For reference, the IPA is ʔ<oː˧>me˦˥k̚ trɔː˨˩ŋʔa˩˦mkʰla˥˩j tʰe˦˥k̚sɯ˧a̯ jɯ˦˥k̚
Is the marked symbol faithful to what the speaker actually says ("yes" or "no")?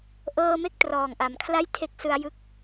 no